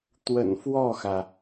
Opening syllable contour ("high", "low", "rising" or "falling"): low